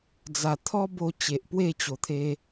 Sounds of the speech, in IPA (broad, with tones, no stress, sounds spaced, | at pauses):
d͡z a˨˩ t̪ʰ ɔ˦ b o˧ t͡ɕ e˨ ʔ p w e˥˧ t͡ɕ o˨˩ t̪ʰ e˧